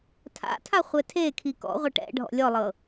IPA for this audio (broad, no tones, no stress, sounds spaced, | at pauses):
tʰ a̰ tʰ a χʷ ɛ tʰ e kʰ i k ɔ̰ ʁʷ a ʈ ɛ̰ ɖʱ ɔ̰ lʲ ɔ lˠ ɤ